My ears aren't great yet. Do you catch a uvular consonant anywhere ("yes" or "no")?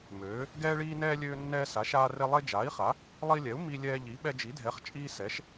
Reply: yes